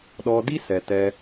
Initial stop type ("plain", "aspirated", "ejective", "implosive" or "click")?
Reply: implosive